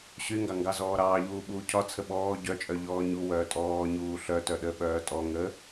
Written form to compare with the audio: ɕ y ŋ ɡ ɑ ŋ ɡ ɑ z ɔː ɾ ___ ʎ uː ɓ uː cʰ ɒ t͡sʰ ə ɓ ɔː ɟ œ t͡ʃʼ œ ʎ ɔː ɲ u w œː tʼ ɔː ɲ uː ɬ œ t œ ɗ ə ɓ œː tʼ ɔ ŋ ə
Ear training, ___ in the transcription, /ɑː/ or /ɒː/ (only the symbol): ɑː